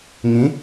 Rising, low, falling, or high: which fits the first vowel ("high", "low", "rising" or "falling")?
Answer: rising